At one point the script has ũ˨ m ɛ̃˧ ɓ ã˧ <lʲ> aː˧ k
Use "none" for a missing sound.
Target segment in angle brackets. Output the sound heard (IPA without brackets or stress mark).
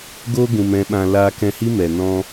l